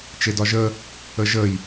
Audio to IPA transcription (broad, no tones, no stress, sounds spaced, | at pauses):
t͡ʃ e d ɒ ʒ ə | ə ʒ ə j